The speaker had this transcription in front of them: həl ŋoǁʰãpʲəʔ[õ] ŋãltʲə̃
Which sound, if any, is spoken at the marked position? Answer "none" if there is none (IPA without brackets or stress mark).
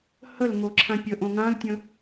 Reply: õ